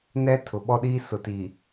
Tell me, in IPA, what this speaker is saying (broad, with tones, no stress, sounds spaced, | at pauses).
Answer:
n ɛ˦ tʰ ʊ˨ ɓ ɔ˦ ɗ iː˦ s ʊ˨ t i˨